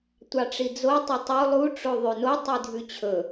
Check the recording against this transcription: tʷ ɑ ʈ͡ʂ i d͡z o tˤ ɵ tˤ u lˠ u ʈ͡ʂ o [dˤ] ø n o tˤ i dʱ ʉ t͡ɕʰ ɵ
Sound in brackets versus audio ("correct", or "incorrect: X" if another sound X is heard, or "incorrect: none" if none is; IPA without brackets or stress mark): incorrect: ðˤ